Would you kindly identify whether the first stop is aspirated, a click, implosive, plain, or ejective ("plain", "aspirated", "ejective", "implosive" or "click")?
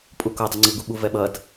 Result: ejective